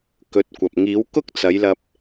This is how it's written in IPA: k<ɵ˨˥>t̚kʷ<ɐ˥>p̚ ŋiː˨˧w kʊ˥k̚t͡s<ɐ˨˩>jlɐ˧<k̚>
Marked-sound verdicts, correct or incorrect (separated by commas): correct, incorrect, incorrect, incorrect